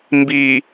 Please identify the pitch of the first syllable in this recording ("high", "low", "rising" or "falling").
low